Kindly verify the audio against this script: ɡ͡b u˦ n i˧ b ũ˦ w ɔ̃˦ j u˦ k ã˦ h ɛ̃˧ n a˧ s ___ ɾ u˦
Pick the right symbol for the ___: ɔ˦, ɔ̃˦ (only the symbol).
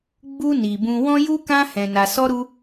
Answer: ɔ˦